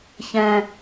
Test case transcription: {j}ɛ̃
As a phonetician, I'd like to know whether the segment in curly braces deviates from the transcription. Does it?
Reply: yes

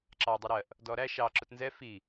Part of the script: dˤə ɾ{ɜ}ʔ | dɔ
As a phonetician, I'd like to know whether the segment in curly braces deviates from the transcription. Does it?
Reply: no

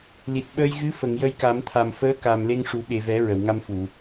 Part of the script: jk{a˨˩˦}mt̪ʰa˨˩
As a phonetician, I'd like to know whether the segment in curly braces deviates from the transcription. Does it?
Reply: no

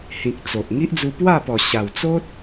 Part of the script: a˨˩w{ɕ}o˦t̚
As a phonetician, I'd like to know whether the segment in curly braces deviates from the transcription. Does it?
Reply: yes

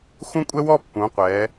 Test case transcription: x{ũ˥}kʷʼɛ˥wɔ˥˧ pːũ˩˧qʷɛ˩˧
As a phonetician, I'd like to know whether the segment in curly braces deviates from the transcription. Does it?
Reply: no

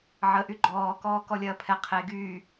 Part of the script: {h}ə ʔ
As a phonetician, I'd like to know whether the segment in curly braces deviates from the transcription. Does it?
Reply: yes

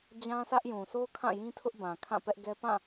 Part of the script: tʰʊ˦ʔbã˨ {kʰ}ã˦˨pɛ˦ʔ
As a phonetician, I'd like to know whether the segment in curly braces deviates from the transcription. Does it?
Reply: no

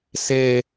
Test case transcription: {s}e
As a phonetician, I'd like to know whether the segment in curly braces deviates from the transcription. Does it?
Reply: no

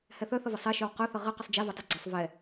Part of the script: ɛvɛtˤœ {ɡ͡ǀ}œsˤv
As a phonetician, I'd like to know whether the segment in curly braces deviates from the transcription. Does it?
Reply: no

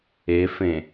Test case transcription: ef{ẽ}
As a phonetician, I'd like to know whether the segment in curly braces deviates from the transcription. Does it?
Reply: no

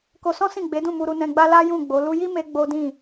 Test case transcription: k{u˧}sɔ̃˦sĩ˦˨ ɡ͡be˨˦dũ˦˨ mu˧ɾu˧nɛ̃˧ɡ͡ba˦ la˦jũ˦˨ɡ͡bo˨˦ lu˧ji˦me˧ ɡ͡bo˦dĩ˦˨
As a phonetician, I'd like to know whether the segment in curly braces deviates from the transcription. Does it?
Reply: yes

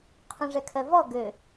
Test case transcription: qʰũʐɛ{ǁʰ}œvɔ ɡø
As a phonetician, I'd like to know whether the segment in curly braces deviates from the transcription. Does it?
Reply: yes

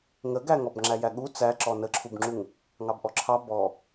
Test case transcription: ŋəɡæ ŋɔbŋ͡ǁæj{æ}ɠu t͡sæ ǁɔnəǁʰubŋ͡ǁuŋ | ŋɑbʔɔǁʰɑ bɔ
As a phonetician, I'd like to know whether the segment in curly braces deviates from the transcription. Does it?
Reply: no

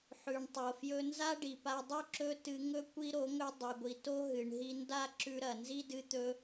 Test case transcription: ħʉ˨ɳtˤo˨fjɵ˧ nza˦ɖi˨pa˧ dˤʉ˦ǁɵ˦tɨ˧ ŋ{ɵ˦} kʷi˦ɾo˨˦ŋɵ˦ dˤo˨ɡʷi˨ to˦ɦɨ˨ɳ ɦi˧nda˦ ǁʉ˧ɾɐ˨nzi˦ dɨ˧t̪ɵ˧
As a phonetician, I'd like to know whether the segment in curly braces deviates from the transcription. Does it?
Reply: no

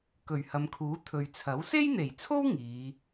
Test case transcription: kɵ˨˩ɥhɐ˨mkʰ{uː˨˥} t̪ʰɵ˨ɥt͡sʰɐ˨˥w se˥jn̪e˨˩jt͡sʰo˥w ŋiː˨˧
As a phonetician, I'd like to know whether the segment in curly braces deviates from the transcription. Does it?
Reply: no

